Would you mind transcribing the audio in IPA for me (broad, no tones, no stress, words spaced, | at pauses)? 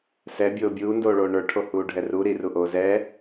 sɛbʲoː bʲuːndoː ɭoːɳə˞ʈʰo huːɖʱɛru ɾiruʔoː zɛ